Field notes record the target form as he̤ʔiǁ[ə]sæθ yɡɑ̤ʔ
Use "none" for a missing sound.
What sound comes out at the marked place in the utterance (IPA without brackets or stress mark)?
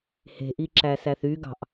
æ